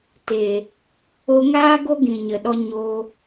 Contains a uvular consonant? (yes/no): no